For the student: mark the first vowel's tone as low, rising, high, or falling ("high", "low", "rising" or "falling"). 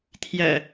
low